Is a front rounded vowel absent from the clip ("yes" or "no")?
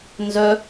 no